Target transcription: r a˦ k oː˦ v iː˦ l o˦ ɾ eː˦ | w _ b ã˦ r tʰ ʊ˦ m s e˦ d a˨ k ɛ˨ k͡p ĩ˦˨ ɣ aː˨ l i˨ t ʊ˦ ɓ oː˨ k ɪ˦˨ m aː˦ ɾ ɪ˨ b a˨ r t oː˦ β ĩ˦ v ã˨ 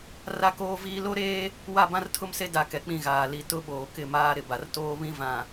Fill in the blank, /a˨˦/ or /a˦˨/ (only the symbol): a˦˨